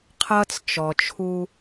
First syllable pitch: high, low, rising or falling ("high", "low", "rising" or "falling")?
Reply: high